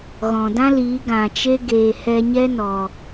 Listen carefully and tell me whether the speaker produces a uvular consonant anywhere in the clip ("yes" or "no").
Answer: no